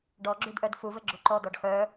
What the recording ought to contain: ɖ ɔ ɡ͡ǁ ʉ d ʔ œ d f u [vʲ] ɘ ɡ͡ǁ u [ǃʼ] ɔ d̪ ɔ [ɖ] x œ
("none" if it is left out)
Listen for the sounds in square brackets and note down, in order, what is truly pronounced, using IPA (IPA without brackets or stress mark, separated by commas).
v, ǃ, ɖ